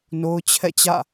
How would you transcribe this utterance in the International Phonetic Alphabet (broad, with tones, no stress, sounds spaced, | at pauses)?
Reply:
n o˦ ʊ̯ t͡ɕʰ ɛ̰˦˨ t͡ɕ ä̰˦˨